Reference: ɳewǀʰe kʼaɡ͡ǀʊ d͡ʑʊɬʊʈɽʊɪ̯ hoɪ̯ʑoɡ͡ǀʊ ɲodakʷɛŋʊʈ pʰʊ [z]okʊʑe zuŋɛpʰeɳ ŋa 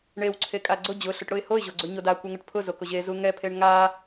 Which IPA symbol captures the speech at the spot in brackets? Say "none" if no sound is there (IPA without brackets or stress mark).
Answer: z